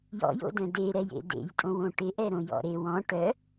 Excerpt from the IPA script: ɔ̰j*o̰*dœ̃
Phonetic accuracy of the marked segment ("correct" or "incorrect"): correct